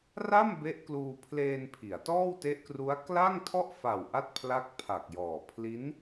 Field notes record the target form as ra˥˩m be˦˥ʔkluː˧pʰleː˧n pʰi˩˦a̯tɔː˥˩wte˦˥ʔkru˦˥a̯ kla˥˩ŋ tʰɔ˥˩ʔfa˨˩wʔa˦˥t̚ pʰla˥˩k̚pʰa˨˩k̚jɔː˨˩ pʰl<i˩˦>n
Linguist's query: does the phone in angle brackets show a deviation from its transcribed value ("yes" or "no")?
yes